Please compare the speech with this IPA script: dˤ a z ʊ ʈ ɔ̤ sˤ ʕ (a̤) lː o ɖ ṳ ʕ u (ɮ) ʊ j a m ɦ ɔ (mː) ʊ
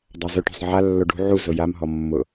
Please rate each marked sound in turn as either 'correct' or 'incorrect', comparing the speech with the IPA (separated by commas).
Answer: incorrect, incorrect, correct